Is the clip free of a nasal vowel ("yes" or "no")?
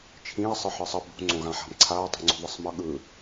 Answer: no